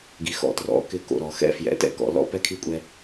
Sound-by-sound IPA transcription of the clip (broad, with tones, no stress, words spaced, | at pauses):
ɡi˨xɔ̰˨trɔ̰˨˦ kɪ˨ ko̰˨ɾɔ˨ xɛ̰˦fjɛ̰˨˦tɛ̰˦kɔ̰˨ lɔ̰˦pɛ˦kʰi˦kʷʼɛ˦